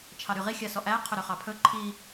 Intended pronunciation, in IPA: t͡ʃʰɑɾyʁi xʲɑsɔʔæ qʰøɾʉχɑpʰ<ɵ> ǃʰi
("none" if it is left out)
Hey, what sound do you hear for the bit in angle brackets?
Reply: ɵ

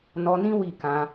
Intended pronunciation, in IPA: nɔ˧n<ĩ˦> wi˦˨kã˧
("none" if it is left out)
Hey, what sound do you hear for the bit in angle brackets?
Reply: ĩ˦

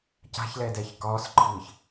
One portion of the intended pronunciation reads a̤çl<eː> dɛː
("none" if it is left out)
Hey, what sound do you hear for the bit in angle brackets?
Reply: ɛː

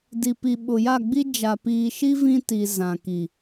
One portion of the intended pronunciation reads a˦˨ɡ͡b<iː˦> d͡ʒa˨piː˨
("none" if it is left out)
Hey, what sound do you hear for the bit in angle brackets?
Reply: i˦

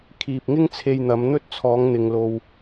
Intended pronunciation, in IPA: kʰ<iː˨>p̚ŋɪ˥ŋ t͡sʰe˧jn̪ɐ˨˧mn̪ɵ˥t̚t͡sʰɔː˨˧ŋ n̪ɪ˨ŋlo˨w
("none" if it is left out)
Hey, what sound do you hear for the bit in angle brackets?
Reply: iː˨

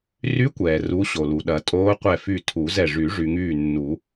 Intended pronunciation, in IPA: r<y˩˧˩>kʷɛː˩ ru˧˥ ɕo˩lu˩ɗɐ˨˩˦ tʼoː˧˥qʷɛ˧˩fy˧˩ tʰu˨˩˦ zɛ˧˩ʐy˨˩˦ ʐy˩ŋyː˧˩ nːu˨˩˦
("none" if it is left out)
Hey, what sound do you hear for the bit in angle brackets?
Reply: y˧˥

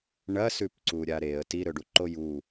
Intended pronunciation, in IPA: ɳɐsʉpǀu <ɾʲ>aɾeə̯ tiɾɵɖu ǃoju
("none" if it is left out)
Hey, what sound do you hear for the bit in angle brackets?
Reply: ɾʲ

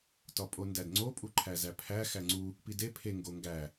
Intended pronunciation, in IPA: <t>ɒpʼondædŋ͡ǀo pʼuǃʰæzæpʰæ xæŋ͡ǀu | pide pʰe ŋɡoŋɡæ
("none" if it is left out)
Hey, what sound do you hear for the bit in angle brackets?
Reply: t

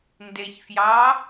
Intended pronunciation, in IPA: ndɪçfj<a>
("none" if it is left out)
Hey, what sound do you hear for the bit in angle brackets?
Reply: ɑ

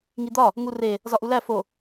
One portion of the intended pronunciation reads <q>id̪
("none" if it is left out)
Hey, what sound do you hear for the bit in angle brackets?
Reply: ŋ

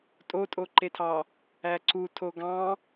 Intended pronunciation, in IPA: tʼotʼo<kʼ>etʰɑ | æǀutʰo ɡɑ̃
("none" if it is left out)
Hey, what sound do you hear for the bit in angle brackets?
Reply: ǃ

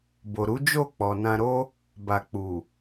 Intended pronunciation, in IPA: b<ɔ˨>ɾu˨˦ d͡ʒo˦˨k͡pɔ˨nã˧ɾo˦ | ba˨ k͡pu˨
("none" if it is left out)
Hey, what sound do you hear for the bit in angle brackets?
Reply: o˨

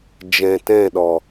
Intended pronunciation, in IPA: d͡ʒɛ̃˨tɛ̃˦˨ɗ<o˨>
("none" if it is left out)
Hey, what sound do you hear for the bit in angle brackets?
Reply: ɔ˨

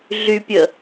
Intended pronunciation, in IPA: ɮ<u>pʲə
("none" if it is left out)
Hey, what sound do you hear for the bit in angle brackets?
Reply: y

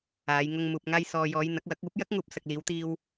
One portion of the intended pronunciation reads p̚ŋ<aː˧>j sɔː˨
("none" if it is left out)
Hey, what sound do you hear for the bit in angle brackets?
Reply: aː˧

